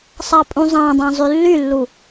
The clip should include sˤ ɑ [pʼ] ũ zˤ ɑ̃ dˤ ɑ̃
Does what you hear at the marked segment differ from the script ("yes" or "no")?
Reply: no